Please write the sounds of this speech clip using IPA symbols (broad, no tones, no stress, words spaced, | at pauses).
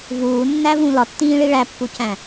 vuːnːævũ lɒtːĩːɭi ɭæpːucæ̃